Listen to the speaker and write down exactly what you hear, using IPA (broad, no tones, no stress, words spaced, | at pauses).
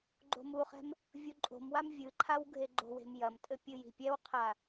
ɡ͡ǃo̤muχɛ̤m | vʲuǃʼo̤mwam vʲɨǃʰaw ɡʱeɡ͡ǃo̤we̤m jɐmtʼɘ pʲɨji̤pʲɛwqʰa